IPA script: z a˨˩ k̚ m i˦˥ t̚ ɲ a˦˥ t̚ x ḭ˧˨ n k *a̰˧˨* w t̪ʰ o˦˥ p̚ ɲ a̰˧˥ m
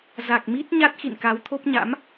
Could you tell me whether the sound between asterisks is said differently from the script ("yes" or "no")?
yes